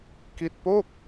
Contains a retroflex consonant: no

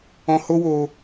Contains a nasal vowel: yes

